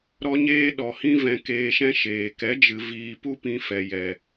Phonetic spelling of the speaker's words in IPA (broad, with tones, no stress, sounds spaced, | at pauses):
ɾ ɔ˦ ɲ eː˦ ɗ ɔ˨ h ĩ˦ v ɛ̃˧ k eː˧ ʃ ɛ̃˦ ʃ eː˨ k ɛ˨˦ d͡ʒ ɨ˨ v iː˧ p u˦ p ĩ˧ f ɛ˨ j ɛ˨